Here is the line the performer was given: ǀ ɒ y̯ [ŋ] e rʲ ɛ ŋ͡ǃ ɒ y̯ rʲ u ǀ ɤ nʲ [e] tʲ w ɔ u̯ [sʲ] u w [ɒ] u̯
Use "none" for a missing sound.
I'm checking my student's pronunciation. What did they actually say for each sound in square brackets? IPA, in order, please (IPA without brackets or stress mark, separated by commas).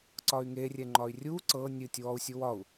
ŋ, ɨ, sʲ, ɒ